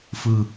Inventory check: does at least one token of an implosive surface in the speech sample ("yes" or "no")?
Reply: no